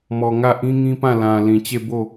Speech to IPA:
mɔ˨ ŋä˦˨ ʔĩ˦ŋĩ˦pã˦˨ lã˨lĩ˨ t͡ɕe˦˨bo˦˨

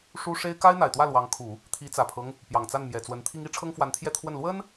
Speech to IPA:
ʂu˥ ʂe˥ɪ̯ ka˥ɪ̯n̪a˨˩ɪ̯t̪wä˥˩ lwɑ˧˥ŋkʰu˨˩˦ | t̪ʰi˧˥t͡sä˨˩pʰɤ˦ŋ | pjɑ˨˩ŋt͡sa˥˩nmjɛ˨˩t͡swə˧˥n t̪ʰi˥ŋi˧˥ ʈ͡ʂʰɤ˥ŋfwa˧˥nt̪ʰjɛ˥˧ t̪ʰwə˥˩n lwə˥n

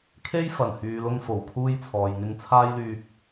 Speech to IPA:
kʰe˥jfɐ˨˩nhyː˨ lʊ˥ŋ fo˨˩wkʰuː˥jt͡sʰɔː˨j ŋɪ˧ŋt͡sʰaː˥jlyː˧k̚

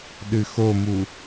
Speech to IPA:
ɗɨxomu

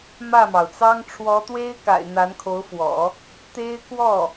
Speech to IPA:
mä˥˩mɑ˩ʊ̯t͡sɑ˥ŋ ʈ͡ʂʰwɔ˧˥t̪we˥ɪ̯ka̰˨˩ɪ̯ n̪a˧˥nkʰo˧˥ʊ̯fwɔ̰˨˩˦ | t̪e˥ɪ̯ kwɔ˥˩

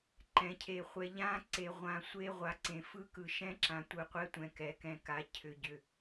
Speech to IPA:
ǃɛ̃˨cʰe˨χʷɛ˨ʎã˦ ǀe˨ʁʷã˨sʷe˦ ʁʷa˨ǀẽ˨fɯ˦ kɯ˨ʃɛ̃˦ǁã˨ tʷɯ˨qʷɛ˦tʷɛ̃˨ kɛ˨kɛ̃˨ka˨ cʰʏ˨ɟʏ˨

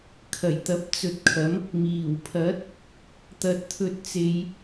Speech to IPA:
kʰɐ˨˩jt̪ɐ˨˥p̚ t͡sɵ˨˥t̚kʰɐ˨˥m | miː˨˩w pʰɐ˨˥t̚ | t̪ɐ˨t̚t̪ʰɵ˧t̚t͡se˧j

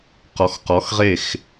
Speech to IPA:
qɔ˨xqɔ˨˦xʁe˦˨x

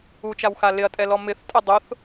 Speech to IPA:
ut͡ʃawxa lɪɐ̯tʼɛlɔ mɪθtʼʊ dˤʊθ

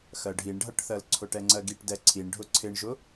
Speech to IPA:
xɜɖʱiɳɖʱʌʈθɜl ǀʰʊʈɛŋ͡ǀɜɡiʈ dɛǀʰiɳ ɖʱʊǀʰɪɳʒʊ

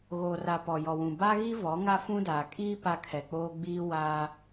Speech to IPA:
ɣoː˨ra˨ pɔ˨jɔ˨wũ˨ ba˦ɣi˦ vɔ˨˦ ŋa˦fũ˦daː˨ kʼiː˦ pa˦kʰɛ˨k͡poː˦ ɡ͡biː˦ waː˦

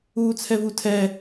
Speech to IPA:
uːt͡sʰɛvutʰɛ

